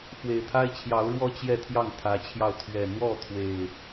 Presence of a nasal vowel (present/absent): absent